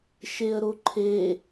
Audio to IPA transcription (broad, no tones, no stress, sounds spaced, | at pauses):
ʃ e ə̯ ɾ o ǃʰ e